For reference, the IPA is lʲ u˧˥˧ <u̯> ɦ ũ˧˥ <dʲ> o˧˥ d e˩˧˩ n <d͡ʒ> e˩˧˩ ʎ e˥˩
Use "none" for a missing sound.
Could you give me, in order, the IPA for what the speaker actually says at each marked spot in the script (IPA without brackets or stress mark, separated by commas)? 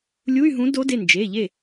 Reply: y̯, d, d͡ʒ